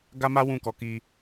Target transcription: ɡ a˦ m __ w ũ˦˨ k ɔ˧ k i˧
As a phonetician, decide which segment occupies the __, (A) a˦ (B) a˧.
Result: A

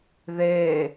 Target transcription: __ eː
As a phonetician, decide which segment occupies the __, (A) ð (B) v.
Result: A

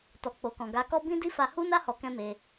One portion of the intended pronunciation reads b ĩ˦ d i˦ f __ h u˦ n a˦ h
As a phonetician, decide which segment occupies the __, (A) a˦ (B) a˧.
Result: B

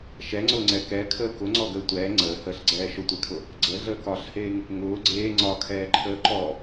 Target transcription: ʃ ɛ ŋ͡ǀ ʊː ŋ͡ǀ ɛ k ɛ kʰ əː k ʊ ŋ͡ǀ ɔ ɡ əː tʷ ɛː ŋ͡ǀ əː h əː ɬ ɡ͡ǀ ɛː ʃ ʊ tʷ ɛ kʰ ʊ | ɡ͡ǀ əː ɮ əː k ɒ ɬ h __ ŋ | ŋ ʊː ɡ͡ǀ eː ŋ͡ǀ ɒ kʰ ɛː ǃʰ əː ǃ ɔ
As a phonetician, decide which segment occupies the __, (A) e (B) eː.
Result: B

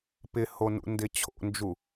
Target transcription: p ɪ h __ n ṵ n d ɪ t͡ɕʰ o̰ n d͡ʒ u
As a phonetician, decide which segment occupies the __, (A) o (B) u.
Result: A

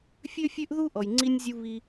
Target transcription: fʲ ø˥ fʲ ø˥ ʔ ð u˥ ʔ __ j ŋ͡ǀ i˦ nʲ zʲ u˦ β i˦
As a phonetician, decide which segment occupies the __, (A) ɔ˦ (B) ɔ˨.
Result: B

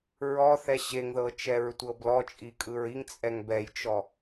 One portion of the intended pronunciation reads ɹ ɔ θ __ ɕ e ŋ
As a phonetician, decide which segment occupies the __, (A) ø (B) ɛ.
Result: B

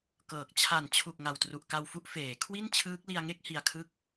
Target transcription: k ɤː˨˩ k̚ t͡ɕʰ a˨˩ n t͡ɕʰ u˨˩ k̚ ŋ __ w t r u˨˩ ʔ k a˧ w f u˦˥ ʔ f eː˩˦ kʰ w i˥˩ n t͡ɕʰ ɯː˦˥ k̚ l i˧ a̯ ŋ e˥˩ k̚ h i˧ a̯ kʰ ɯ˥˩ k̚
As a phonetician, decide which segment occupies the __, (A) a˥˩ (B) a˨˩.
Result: B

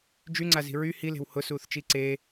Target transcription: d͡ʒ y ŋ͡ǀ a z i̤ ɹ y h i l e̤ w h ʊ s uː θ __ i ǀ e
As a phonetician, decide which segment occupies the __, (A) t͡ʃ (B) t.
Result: A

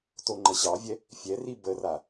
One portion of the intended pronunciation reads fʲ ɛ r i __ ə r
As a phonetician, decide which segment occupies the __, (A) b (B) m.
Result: A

